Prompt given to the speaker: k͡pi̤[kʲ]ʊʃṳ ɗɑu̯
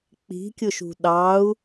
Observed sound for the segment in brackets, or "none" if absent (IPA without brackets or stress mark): kʲ